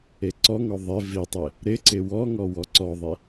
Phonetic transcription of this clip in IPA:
eǀɔŋɔ ðˤɪ vitˤe | ɾɪǀɪ wɔŋɔ wɔǀɔðˤe

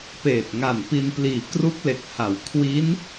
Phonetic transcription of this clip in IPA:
peː˨˩t̚ŋa˨˩npi˧npliː˨˩ kru˦˥k̚le˨˩k̚ha˩˦w kʰwi˦˥n

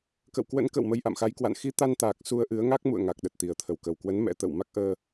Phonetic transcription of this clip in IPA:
kə̰˧˨wkwə̰˧˥nkə̰ː˧˨w mə˧jʔa̰˧˨mxa˨˦jkwa̰˧˨n xi˨˦t̪a˧nt̪aː˨˩k̚ su˧ə̯ʔɨ˨˦ə̯ŋa˦˥k̚ mṵ˧˨ə̯ŋa˨˩k̚ ɗə˨˩t̚t̪i˨˩ə̯t̪ʰə˧˩w kə˨˩wkwə˨˦n mɛ̰˧˥t̪ə̰ː˧˨w ma˦˥k̚ʔəː˧

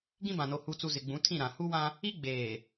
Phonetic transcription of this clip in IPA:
ɡĩ˦bã˨no˨ hu˨t͡su˨ zɪ˨ɡ͡bũ˨˦tʰĩ˦˨ ɾã˨ hu˦wã˦ | i˦ɡ͡beː˨

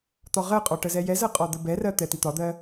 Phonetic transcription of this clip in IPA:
t̪ɒʁɜqʼɒ ʈəzɛjɛzɜ qʼɒd̪əbɛrɜ t̪ɛt̪it̪ɒd̪ɜ

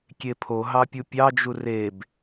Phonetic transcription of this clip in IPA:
kʲepʰo ɦɑpʲupʲɑ d͡ʒureb

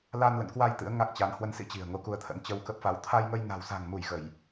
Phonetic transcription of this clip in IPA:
la˧nlə̰˧˨nkwa˧j t̪ɨ̰˧˥ə̯ŋa˦˥k̚t͡ɕa˨˦n hwə˨˦nsḭ˧˥ t͡ɕi̤˨˩ə̯ŋo˧ku˧ə̯t̪ʰə̰˧˥n t͡ɕə˧wkə˦˥p̚fa˨˦w t̪ʰa˧jŋə˧j na̤˨˩w sa̤˨˩ŋmu˧˩j ɣə˧˩˨j

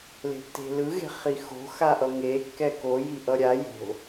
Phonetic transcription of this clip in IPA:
le̤tːe̤lɯ ɣe̤χixo̤ xaʔʌŋe kːɛko jiʔʌɾʲa jo̤

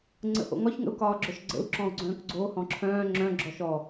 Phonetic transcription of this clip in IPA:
ŋ͡ǀə̰ho̰ŋɒç ŋə̰u̯kɒːɡ͡ǁœʃɡ͡ǀə̰u̯ ǁɔ̃u̯ɡ͡ǀœ̃ːkɡ͡ǀo hɔ̃ǁʰœ̃ː ŋ͡ǁœ̃ ɡ͡ǁɔʃɔ

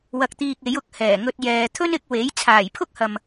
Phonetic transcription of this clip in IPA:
wɐ˨k̚t̪iː˨k̚ e˨˥jʊ˨˥k̚hɛː˨˩ŋɵ˧t̚ jɛː˨t̪ʰɵ˥nɪ˧k̚ we˨˥j t͡sʰaː˨˩jpʰʊ˥k̚hɐ˨m

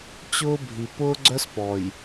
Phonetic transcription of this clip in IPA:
t͡ɕʊː˦bʱi˨ pʊː˦ɡ͡ǀœ˦spɔ˨j

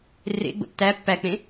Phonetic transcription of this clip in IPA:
rḛ ɡ͡bo̰tːæ pːæk͡pẽ

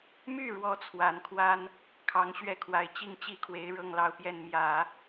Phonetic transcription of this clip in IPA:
my˥˩ ɻwɔ˥t͡sʰwa˨˩nkʰwa˥n | kʰɑ˧˥ŋɕɥɛ˥˩kʰwa˧˥ɪ̯ t͡ɕi˥˩ŋt͡ɕi˥kʰwe˧˥ɪ̯ ɻɤ˥˧ŋlɑ˥˧ʊ̯pjɛ˥˩n mjä˨˩˦

